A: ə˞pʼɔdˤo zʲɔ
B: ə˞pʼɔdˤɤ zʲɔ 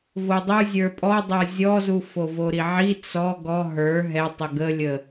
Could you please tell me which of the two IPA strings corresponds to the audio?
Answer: B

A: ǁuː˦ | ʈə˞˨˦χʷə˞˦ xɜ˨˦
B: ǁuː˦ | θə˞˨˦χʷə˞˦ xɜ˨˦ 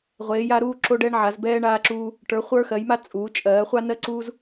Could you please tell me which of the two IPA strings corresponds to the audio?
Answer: A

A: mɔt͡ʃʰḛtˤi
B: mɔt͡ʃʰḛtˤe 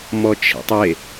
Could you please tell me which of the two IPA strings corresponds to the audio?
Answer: B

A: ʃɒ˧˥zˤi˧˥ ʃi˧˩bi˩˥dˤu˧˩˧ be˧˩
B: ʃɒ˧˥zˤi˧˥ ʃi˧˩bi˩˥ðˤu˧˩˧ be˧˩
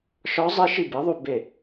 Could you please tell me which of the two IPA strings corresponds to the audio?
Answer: B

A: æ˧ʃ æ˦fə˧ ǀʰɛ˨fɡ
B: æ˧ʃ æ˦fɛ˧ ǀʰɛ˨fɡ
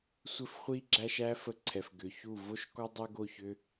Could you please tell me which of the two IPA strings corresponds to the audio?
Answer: A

